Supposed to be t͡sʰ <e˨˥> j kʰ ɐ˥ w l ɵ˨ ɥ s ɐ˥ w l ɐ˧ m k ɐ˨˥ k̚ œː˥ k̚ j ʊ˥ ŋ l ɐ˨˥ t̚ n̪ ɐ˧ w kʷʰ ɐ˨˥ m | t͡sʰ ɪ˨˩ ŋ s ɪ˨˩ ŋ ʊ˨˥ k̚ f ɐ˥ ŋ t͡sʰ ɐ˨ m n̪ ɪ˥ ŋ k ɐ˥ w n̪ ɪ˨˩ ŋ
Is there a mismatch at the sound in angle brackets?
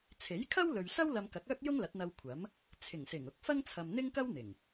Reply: no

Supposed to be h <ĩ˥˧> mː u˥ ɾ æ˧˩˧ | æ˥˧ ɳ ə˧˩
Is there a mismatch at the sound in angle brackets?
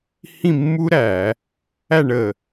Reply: no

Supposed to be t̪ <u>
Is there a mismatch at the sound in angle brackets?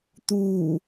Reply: yes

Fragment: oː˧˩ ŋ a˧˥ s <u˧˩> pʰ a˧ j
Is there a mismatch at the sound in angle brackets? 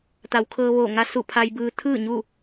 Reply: no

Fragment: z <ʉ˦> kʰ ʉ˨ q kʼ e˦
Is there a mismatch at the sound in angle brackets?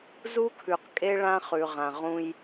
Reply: yes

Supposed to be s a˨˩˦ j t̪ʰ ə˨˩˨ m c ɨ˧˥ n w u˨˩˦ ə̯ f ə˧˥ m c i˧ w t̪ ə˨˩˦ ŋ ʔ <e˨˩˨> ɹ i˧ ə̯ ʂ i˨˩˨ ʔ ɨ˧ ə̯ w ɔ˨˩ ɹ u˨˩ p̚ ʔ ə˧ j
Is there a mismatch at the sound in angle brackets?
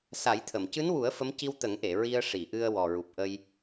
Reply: no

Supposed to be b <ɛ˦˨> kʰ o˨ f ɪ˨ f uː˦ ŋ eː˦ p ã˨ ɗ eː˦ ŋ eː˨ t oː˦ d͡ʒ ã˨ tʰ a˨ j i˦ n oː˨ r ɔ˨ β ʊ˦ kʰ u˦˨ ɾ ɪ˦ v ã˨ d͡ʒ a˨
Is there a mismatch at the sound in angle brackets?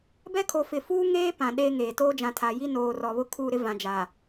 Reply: yes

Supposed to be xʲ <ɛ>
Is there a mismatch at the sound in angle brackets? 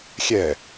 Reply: no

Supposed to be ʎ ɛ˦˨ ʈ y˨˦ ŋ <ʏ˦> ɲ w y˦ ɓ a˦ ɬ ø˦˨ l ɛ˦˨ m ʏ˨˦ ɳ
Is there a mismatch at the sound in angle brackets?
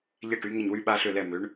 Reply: yes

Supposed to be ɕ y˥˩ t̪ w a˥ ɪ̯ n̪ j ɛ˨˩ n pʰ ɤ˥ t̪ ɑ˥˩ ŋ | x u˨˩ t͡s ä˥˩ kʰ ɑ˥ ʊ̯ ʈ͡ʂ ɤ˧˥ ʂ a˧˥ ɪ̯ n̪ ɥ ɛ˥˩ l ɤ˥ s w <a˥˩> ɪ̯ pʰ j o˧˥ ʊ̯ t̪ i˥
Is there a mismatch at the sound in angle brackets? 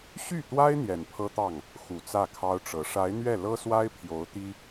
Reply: yes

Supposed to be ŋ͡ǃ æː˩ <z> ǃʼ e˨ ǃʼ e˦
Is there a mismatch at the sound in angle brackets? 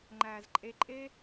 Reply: no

